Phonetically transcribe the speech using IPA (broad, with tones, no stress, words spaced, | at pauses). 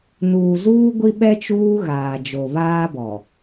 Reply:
nuː˨zuː˦ ɡʷi˦ɓɛ˦ t͡ʃuː˦ɣaː˨ d͡ʒo˨βaː˦bɔ˨